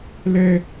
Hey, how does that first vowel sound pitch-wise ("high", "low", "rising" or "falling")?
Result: high